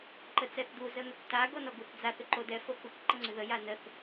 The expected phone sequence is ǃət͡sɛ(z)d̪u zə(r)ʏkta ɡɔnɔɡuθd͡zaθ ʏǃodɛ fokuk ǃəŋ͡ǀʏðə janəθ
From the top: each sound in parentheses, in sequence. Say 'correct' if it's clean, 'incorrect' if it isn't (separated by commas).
incorrect, incorrect